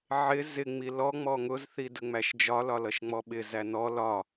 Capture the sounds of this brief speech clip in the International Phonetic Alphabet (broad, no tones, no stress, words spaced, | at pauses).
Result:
ʕɪ zɪŋ͡mi lɔŋ͡mɔ ŋʊzθi dəŋ͡mæʃd͡ʒɒlɒ lʌʃŋ͡mɔɓɪ zænɔ lɒ